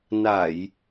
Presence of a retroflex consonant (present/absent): absent